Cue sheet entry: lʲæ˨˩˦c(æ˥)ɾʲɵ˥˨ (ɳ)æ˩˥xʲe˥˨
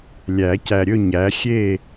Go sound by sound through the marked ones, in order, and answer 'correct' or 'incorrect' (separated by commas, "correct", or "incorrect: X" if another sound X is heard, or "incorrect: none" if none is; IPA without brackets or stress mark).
incorrect: æ˨, incorrect: ɲ